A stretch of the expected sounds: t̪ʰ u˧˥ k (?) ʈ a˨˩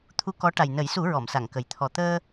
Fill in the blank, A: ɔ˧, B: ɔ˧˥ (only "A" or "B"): B